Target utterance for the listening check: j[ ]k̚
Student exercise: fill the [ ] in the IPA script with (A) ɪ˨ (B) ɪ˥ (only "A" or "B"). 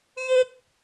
B